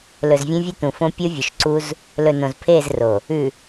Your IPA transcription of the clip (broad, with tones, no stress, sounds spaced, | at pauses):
l ɵ˨ z vʲ ẽ˦ vʲ ʉ˦ t̪ ũ˨ f õ˦ pʲ o˦ vʲ ɵ˨ ʃ ǀ u˦ z | l ɵ˨ n õ˨ z pʰ eː˦˨ z r o˨ | ʉ˨